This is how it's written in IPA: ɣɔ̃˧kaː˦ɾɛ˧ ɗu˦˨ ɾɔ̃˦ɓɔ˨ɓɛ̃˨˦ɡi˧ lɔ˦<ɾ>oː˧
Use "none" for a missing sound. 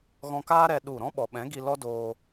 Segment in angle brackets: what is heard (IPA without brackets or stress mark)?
d